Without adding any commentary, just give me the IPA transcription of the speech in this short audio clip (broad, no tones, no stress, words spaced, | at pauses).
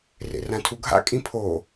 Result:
rḛrãtʰuɡʱa̰ kʼĩpʰo